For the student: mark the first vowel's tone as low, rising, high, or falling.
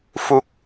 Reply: falling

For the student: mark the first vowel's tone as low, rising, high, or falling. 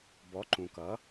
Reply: rising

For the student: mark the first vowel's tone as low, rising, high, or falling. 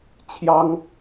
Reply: high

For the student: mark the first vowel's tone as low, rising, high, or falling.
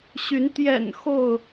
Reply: rising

